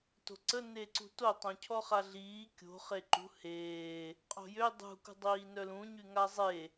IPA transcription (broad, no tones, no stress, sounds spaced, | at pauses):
t o̤ ǀ ə n e ǀ ṳ t o tˤ õ cʰ ɔ χ a ɮ iː kʲ o̤ χ e ǃ ṳ h eː | qʼ o̤ j ø dˤ ṳ k ṳ dˤ iː n œ l ũ ɲ y ŋ a zˤ e